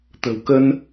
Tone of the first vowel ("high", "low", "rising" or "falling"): low